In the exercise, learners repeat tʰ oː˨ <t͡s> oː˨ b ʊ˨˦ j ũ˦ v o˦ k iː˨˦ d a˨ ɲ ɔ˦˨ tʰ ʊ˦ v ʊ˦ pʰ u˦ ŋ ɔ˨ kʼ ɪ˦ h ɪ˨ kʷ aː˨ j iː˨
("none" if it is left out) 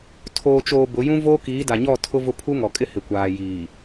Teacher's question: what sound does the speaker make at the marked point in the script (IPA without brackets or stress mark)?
t͡ʃ